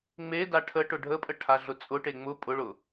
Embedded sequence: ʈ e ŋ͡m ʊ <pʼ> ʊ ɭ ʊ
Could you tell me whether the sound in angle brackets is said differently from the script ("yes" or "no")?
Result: no